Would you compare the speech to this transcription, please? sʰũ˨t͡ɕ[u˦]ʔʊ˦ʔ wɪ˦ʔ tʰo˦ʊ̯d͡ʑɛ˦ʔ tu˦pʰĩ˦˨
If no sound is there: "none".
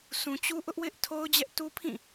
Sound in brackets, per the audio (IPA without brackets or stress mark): u˦